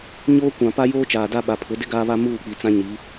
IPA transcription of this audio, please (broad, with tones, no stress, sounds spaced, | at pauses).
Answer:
ɲ oː˦ kʷ ã˨ p a˦ j oː˦ t͡ʃ aː˨ d a˦ ɓ a˨ pʰ ʊ˨˦ d ɪ˦ ɡ aː˦ β a˦ m uː˦˨ k͡p i˨ t͡s ã˦ ɲ i˨˦